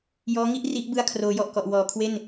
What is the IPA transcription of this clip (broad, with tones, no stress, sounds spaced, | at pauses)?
j ɔː˦˥ ŋ i˥˩ ʔ r i˦˥ ʔ b ɯ˧ a̯ kʰ r oː˩˦ j ɔ˨˩ ʔ k ɔ˨˩ ʔ w ɔː˨˩ kʰ w e˥˩ n